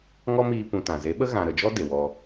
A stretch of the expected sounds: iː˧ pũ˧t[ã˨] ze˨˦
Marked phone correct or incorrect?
correct